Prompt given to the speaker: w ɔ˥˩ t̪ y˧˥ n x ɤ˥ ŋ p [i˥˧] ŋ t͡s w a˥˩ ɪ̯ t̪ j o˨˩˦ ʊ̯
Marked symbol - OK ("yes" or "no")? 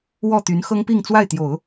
yes